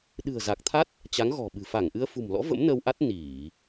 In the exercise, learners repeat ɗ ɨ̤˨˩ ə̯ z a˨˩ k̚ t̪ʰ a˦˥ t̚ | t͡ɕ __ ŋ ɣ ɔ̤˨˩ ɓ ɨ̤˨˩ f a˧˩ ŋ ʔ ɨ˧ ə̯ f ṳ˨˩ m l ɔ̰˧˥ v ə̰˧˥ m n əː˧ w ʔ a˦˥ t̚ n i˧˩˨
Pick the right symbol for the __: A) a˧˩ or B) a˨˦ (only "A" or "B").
B